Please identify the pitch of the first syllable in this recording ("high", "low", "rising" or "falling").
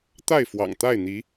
falling